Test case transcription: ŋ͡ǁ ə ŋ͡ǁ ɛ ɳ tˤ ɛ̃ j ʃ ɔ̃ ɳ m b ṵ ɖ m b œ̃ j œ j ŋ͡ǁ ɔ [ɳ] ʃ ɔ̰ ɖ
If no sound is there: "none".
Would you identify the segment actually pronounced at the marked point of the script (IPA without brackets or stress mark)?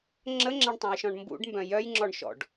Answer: ɳ